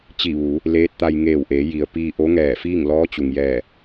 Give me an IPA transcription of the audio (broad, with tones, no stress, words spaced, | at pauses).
t͡ɕi˧˩ʋuː˩˧ | leː˧˥t̚t̪a˧j ŋeː˧˩wʔeː˩˧ ji˩ə̯piː˧ ʔo˧˥ŋɛː˧˩fiː˥˨ŋ lɔː˧˥t͡ɕu˩ŋjɛː˧˩